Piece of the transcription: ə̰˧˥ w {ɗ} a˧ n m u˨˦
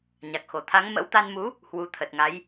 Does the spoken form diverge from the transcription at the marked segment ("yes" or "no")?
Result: yes